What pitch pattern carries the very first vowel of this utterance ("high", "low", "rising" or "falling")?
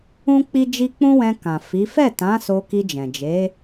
high